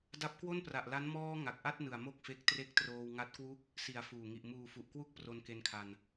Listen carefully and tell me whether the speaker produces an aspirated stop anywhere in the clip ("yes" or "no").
yes